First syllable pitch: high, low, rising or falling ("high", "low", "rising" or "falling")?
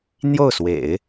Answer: falling